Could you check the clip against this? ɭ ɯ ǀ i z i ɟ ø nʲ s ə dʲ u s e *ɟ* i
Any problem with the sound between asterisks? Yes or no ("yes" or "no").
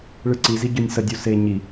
yes